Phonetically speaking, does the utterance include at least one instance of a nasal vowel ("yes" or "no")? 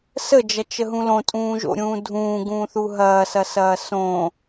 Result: yes